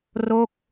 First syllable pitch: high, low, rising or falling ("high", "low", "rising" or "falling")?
falling